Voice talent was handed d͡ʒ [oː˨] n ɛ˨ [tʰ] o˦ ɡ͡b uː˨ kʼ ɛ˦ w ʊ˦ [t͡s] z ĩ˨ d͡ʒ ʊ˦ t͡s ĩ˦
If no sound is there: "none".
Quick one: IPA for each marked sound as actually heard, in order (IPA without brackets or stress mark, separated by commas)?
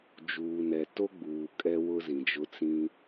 uː˨, t, none